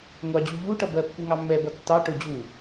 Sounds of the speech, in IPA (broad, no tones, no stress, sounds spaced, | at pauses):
ŋʷ ɑ d͡ʑ u ʎ u ʈ ʌ b ɜ pː u ŋ ɑ mː ɛ b ʌ tː ɑ ʈ ʊ d͡ʑ u